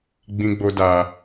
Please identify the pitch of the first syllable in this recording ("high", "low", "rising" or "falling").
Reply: high